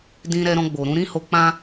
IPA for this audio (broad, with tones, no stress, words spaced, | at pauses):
dĩ˧ɾɛ˧ɾɔ̃˧ ɡ͡bo˨ɾũ˧ɾĩ˦ ho˧k͡pã˦